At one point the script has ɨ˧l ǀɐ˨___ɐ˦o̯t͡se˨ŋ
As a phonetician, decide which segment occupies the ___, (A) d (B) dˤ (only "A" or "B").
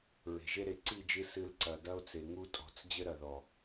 A